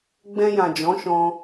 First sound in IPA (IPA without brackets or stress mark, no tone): ɡ͡b